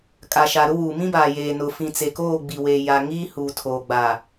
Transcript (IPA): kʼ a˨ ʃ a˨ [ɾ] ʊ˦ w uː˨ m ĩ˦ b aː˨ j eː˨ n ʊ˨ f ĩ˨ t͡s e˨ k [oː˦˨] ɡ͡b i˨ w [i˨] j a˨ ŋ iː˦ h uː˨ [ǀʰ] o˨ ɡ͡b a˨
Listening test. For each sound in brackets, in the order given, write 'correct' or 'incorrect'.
correct, correct, incorrect: e˨, incorrect: tʰ

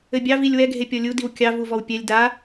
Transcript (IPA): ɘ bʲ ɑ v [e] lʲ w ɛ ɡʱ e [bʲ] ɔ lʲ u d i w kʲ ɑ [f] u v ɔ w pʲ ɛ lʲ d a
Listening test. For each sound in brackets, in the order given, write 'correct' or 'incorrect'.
incorrect: i, incorrect: pʲ, incorrect: v

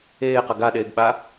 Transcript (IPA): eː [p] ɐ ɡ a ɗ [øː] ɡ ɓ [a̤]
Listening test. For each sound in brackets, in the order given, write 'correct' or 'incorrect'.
incorrect: q, incorrect: eː, incorrect: a

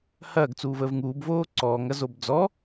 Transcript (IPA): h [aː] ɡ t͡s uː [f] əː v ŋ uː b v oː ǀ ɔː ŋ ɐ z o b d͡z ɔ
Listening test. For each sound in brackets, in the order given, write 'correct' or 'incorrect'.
incorrect: ɐː, incorrect: v

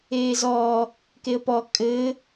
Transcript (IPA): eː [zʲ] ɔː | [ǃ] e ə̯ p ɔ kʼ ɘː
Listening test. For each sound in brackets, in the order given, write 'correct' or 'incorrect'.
incorrect: z, incorrect: k

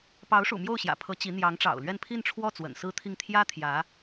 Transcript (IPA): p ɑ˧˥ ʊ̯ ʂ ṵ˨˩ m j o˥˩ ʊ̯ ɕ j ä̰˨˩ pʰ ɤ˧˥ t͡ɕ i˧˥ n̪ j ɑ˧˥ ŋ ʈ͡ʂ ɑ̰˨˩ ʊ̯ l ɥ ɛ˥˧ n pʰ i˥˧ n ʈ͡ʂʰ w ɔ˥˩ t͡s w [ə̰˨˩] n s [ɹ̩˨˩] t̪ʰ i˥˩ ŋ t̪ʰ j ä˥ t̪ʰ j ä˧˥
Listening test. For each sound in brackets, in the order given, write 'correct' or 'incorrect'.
correct, incorrect: ɹ̩˥

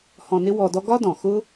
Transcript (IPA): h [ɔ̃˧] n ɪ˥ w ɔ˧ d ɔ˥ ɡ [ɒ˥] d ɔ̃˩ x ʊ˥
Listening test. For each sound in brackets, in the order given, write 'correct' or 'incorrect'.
correct, correct

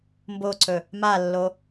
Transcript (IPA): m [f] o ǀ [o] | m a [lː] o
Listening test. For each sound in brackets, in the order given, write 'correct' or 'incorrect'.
incorrect: b, incorrect: ɵ, correct

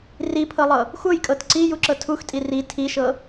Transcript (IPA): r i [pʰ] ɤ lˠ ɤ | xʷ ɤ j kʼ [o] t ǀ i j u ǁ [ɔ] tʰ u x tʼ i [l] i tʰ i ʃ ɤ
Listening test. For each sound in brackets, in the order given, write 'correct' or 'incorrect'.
correct, incorrect: ɤ, incorrect: ɤ, incorrect: r

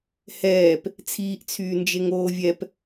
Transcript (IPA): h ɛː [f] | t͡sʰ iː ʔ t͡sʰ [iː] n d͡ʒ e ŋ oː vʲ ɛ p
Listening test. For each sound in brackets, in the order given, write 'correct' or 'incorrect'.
incorrect: p, incorrect: yː

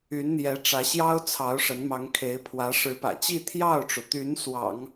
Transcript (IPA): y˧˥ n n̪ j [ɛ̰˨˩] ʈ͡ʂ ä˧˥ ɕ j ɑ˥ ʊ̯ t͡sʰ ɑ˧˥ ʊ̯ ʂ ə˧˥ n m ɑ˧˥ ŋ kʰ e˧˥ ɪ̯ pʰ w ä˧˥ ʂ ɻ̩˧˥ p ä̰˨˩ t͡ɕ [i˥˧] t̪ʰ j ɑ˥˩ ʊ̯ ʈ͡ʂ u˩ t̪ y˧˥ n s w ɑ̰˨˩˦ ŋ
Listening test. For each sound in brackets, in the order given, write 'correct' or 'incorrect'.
incorrect: ɛ˧˥, correct

